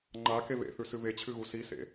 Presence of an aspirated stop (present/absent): present